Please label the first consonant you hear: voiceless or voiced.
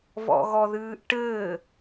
voiced